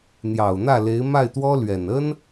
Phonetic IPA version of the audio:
n̪jɑ˨˩ʊ̯n̪ä˥˩le˧˥ɪ̯ ma˥˩ɪ̯t̪wɔ˥ lɥɛ˨˩nə˥n

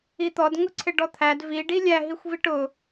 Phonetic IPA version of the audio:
it̪ɔd ŋʊǀʰɪɖɔt̪ʰæd vi ɖilʲæ ɦixʷviʈʊ

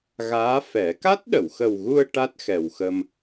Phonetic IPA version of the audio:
ɣaː˧˥fɛ˨˩˦ ka˦˥t̚ɗə˨˩˨wxə˨˩wɣu˧ə̯ ʈa˦˥t̚xɛ˨˩wxə˧m

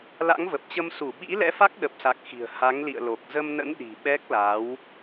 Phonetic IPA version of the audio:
la̰˧˥ŋvə˨˩p̚t͡ɕə˧m su˧˩ɓḭ˧˥ lɛ̰˧˥fa˦˥k̚ɗə˨˩p̚sa˨˩k̚ xi̤˨˩ə̯ ha˨˦ŋlḭ˧˨ə̯lo˨˩k̚ zə˧mnə̰˧˥nɗi̤˨˩ ɓɛ˦˥k̚la˨˦w

